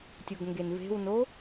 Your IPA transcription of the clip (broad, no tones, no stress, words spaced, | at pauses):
tʲoɡŋɡenve̤wno